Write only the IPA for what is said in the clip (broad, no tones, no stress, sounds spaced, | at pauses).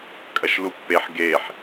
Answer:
kʼ ɐ ʃ l u pː e ħ ɡ e ħ